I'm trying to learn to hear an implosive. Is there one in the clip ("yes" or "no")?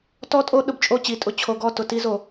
yes